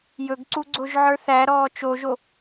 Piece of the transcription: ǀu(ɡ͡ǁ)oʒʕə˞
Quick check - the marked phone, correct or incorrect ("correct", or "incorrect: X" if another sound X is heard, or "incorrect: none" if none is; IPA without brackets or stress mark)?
incorrect: ɡ͡ǀ